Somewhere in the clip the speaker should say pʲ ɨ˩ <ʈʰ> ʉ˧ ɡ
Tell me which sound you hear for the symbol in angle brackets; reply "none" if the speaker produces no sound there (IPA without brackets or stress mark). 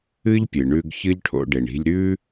ɳ